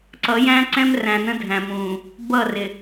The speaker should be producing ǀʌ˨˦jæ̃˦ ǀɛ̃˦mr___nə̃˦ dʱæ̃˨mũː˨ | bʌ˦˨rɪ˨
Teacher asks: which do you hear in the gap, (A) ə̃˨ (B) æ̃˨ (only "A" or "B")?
B